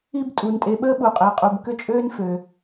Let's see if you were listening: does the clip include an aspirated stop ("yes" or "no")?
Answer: no